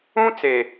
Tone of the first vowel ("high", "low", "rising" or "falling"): high